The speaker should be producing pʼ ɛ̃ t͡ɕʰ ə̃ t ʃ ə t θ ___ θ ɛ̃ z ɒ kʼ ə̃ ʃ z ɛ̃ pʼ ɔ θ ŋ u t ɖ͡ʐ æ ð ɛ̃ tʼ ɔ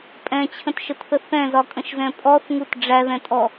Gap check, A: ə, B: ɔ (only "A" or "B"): A